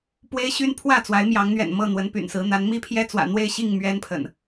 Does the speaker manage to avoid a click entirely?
yes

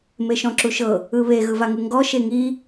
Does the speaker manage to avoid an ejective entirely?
yes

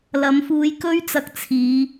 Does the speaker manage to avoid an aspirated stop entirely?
no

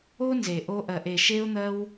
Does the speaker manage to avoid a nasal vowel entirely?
yes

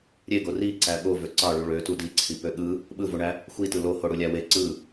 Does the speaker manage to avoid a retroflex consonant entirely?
no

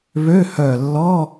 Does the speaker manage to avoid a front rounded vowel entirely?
no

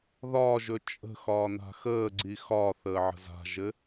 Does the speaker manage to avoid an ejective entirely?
no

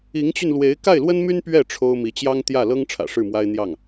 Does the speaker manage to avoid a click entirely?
yes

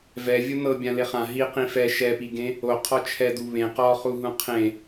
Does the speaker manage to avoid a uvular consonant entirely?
no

